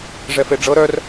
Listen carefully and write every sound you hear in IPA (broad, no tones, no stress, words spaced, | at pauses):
ʐɛfeɖ͡ʐɤ ɾœr